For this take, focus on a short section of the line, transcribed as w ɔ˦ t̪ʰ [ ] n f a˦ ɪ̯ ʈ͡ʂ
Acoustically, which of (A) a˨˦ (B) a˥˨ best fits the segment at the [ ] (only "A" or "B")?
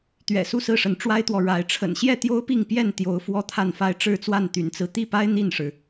B